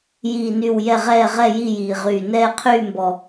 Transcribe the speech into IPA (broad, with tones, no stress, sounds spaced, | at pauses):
j iː˧˩ n y˧˩ w j ɛ˧˩ ʁ ɛː˧˩ ʁ ɛ˧˩ j i˧˩ j iː˩ ʁ yː˩ n ɛː˧˩ qʰ yː˧˩ m b ɔ˩